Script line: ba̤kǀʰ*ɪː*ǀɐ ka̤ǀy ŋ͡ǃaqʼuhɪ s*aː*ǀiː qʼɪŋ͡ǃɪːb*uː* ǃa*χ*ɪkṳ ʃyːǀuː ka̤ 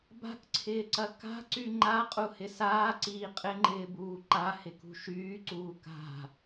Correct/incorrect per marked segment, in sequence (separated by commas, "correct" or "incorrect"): correct, correct, correct, incorrect